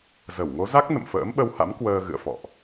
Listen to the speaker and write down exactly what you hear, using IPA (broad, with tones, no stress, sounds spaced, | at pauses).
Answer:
z ə˧˩ w ŋ o˨˦ z a˦˥ k̚ n ə̰˧˨ m f ə̰ː˧˥ m ɓ ə˧ w h a̰˧˥ m k w əː˧ ɣ ɨ̰˧˨ ə̯ f ɔ̰˧˨ ʔ